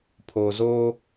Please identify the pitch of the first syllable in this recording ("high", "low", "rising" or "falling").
low